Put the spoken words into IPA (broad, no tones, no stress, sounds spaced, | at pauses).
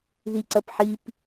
ð i ǀ ɐ p ħ i p